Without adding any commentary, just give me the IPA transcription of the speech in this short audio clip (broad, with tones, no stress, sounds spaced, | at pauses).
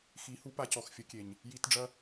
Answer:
x i˨˦ h u˦ p a˧ c ɔ˨ x fʲ ə˨˦ kʲ e˨ ɲ | j i˦ t ɖ͡ʐ ɐ˦